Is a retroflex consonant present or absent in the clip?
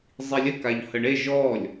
present